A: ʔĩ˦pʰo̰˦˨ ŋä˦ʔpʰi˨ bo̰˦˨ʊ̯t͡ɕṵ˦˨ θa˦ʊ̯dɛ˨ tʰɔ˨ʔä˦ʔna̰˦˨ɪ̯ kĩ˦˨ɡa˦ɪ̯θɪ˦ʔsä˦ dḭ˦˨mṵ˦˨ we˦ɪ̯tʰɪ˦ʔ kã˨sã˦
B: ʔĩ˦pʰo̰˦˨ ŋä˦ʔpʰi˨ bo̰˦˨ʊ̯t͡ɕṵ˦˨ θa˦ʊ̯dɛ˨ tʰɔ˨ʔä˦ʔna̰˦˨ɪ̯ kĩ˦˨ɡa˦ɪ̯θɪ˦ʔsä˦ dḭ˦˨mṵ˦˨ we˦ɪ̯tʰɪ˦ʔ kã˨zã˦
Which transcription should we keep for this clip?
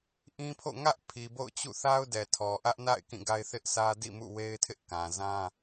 B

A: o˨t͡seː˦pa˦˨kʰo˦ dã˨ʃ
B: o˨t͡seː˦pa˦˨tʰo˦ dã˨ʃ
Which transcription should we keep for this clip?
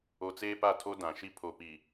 B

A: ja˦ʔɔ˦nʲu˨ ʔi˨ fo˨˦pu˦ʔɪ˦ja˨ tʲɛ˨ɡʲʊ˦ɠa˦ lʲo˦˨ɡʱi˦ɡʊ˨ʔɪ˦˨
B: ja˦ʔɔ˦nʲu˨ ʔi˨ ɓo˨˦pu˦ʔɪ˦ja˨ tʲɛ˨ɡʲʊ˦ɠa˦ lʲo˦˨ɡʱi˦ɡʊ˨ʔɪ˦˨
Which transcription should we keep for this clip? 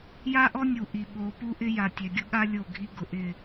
B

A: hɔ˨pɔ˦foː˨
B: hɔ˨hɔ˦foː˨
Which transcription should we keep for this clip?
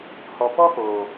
A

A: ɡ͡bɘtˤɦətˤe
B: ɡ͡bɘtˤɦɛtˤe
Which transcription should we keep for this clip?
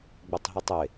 A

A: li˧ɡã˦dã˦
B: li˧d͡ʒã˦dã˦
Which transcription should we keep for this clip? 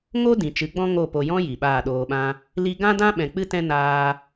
A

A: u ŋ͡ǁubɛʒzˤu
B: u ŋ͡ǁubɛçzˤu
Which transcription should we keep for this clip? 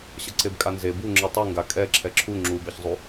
B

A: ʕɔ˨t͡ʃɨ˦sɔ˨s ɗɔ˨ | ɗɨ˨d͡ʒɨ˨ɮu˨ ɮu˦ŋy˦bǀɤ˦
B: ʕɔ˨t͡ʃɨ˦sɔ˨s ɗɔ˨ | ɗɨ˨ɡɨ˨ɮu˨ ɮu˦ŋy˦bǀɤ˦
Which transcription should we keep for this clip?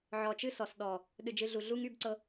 A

